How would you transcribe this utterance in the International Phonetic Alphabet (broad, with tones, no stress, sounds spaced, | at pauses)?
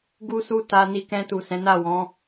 ɡ u˦ s u˦˨ t a˧ n i˧ k ɛ̃˧ t u˨ s ɛ̃˨˦ n a˦˨ w ɔ̃˨˦